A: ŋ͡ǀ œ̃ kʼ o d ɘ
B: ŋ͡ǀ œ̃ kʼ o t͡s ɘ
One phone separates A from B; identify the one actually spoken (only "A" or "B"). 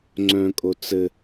B